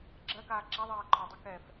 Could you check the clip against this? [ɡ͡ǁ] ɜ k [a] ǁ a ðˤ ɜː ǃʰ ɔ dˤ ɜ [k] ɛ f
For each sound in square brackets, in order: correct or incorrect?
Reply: correct, incorrect: aː, correct

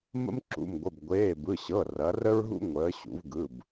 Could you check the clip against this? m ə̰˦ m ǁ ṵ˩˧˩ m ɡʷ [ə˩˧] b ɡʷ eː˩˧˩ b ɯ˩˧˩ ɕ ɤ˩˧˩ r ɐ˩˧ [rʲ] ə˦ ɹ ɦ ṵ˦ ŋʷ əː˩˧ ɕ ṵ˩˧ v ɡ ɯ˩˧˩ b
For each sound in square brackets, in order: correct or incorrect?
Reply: incorrect: ə˩˧˩, incorrect: r

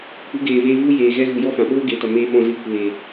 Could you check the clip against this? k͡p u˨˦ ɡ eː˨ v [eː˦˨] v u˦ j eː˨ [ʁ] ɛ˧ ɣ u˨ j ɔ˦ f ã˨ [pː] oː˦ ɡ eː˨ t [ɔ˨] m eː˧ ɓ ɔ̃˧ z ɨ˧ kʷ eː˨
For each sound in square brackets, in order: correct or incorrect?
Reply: incorrect: eː˧, incorrect: ɣ, incorrect: ɓ, correct

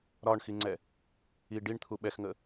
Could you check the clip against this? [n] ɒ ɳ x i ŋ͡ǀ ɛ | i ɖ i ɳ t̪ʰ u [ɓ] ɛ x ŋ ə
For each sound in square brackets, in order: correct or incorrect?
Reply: incorrect: ɾ, correct

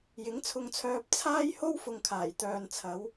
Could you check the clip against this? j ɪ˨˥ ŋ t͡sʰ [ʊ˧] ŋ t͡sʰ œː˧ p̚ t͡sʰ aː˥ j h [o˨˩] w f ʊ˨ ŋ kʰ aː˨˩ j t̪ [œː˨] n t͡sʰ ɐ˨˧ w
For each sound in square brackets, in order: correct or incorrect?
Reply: correct, incorrect: o˥, correct

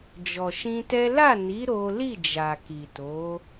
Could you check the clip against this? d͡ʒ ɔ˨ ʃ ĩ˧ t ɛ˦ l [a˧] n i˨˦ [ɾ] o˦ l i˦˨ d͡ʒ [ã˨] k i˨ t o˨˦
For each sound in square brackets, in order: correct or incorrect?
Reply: incorrect: a˦˨, correct, incorrect: a˨

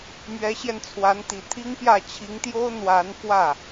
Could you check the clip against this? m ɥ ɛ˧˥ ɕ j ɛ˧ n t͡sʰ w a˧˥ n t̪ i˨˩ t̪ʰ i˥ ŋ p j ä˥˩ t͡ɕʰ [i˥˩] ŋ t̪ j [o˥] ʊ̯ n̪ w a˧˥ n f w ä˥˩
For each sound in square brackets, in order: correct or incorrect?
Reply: incorrect: i˧˥, correct

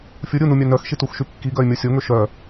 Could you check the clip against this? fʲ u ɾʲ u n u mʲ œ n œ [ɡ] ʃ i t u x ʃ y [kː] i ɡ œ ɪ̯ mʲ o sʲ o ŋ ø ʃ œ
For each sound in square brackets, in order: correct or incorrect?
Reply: incorrect: x, correct

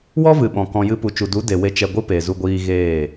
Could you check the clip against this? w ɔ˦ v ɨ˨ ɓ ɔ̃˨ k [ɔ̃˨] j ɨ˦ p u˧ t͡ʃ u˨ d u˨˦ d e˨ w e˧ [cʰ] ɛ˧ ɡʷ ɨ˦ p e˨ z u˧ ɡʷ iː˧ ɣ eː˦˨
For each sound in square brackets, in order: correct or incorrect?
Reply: incorrect: ɔ̃˧, incorrect: t͡ʃ

